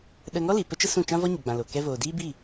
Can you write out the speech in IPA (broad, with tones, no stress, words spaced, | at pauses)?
ɗə˧ŋɔ˦li˨ pə˦t͡ʃə˦sũ˦˨ t͡ʃã˦vɔ˦ɲə˨ɡ͡bã˨ lo˨ kɛ˧voː˨ diː˦bi˦˨